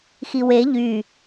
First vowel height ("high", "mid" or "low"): high